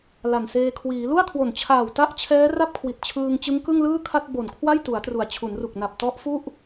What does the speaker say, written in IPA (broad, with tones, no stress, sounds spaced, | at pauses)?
l a˨˩ n s eː˧ kʰ w iː˩˦ l u˥˩ a̯ kʰ w o˨˩ n t͡ɕʰ aː˨˩ w t a˥˩ ʔ t͡ɕʰ ɛː˦˥ r a˥˩ p̚ kʰ w i˨˩ t̚ t͡ɕʰ ɯː˧ ŋ t͡ɕ ɯ˦˥ ŋ k ɯ˥˩ ŋ l ɯː˥˩ kʰ a˥˩ t̚ b o˨˩ n kʰ w a˥˩ j t u˩˦ a̯ t r u˩˦ a̯ t͡ɕʰ u˩˦ n r u˨˩ k̚ n a˨˩ p̚ t ɔ˦˥ ʔ f u˥˩ ʔ